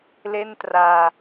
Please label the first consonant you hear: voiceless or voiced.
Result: voiced